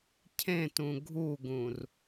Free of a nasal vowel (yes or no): no